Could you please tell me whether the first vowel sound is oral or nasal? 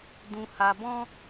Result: nasal